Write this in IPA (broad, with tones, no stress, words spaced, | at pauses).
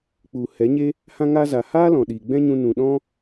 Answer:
k͡pu˨ hɛ˨˦ɲe˦ | hã˧ ŋa˧za˨ haː˦lɔ̃˨ ɗiː˨ɡ͡bɛ̃˦ɲũ˧ nũ˨ ɗɔ̃˦